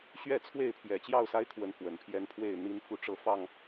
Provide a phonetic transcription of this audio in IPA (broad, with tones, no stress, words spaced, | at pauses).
ɕɥɛ˥˨t͡sʰwe˥˨ɪ̯pʰjɛ˨˩ t͡ɕjɑ˥˨ʊ̯sa˦ɪ̯kʰwə˨˦n fwə˨˩npʰjɛ˦npʰwe˥˨ɪ̯ n̪i˦n fu˦ʈ͡ʂɤ˦fɑ˥˨ŋ